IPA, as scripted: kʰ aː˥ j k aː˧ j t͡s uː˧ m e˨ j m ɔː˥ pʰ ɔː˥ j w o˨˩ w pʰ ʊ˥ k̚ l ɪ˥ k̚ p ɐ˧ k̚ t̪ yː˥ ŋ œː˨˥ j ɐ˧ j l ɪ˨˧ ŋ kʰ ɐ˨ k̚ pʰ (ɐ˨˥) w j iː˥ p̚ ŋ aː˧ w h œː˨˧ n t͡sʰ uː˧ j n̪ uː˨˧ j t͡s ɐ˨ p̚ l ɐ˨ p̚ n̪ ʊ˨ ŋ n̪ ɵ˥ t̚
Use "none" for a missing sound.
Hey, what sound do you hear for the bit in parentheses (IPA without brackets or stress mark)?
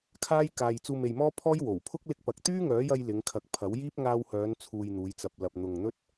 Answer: ɐ˨˥